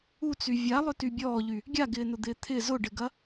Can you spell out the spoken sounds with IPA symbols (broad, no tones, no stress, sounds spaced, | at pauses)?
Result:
u t͡s y vʲ a lˠ ʏ t y bʲ ɔː ʎ y | ɡʲ a ɡ ɪː n ʊ d̪ ɪː t̪ʰ ɪ z ʊ ɖ ɪ ɡ ɐ